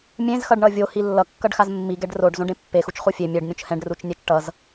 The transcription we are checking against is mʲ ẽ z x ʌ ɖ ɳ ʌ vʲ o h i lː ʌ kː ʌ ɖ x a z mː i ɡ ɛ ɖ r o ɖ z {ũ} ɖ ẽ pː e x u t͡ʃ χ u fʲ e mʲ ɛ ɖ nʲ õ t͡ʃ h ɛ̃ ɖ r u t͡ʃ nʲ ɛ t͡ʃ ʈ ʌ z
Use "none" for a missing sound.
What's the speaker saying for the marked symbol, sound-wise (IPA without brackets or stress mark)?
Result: õ